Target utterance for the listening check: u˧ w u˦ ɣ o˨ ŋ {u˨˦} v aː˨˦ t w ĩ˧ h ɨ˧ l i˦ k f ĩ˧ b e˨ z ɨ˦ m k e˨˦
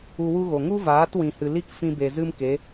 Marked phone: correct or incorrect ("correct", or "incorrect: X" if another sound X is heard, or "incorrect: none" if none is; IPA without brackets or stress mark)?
incorrect: u˦